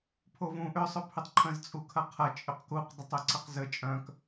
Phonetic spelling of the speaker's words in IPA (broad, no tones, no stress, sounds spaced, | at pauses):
pʰ o v ũ ʔ ʏ sˤ ʊ pʰ ʏ tˤ ǃʰ ə̃ z t͡sʼ u kʰ ɐ qʰ ɐ t͡ʃʼ ʏ q k u q dˤ ə tˤ ø ǀ ə q z ə t͡ʃʼ œ̃ k